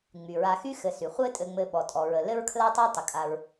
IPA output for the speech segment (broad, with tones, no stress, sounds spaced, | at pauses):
ŋ͡m y˩ ɹ a˨ x y˦ x ɘ˨ s y˩ χʷ ɘ˦ tʼ ɘ˨ ŋ͡m ɘ˨ ɓ ɔ˩ tʼ ɔ˩ ɹ ə˩ l ɘ˥ ɹ kʰ l a˥ tˤ a˥ tˤ ə˩ kʼ a˨ ɹ